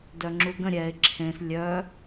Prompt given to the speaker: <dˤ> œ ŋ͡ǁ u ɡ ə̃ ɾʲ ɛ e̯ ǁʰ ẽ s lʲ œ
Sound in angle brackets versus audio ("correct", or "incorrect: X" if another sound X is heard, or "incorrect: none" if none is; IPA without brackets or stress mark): incorrect: d